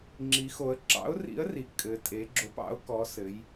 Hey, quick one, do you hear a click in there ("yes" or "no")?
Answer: yes